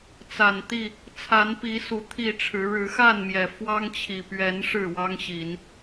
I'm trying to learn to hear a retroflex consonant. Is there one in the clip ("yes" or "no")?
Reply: yes